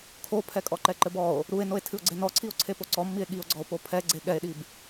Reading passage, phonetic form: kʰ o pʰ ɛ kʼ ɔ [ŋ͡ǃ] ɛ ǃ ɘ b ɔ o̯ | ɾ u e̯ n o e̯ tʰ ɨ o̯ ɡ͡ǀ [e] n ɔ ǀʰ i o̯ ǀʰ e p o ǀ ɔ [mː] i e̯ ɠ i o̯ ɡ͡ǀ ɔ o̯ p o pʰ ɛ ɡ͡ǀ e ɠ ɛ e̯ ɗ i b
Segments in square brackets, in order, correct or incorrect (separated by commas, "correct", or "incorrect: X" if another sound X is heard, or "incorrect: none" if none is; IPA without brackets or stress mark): incorrect: ǃ, correct, correct